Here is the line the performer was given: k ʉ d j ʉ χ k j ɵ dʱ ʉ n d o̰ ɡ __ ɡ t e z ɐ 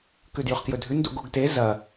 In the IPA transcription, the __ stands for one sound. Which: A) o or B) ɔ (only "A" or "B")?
A